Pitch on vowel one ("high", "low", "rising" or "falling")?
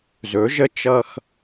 rising